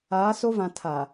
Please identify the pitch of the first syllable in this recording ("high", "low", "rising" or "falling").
rising